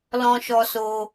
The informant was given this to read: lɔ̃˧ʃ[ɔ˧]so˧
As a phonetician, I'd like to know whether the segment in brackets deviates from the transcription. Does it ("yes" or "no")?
no